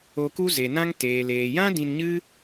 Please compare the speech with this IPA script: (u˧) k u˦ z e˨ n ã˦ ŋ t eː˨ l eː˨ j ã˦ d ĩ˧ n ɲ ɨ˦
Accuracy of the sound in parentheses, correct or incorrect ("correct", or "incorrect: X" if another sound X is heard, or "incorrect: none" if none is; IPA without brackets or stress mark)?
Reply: incorrect: o˧